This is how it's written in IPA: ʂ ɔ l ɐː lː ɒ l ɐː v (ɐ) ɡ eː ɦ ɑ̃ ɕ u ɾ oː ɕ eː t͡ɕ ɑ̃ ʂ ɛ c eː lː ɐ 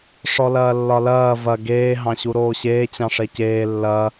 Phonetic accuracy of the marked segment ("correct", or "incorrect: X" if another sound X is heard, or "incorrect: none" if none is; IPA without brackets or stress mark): correct